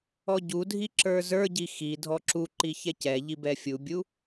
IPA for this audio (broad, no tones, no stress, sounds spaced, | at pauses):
ɔ ɟ u dʱ i ǁ ə˞ z ə˞ ɟ i x i dʱ ɔ ǁ u ǃ i ç ɛ c ɛ ʎ i b ɛ fʲ u bʲ u